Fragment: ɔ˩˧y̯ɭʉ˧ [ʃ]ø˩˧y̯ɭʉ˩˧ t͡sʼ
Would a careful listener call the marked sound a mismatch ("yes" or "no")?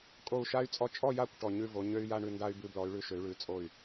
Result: no